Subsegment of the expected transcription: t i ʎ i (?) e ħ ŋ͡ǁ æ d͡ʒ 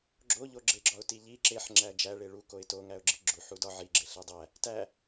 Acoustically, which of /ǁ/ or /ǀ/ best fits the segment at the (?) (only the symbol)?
ǁ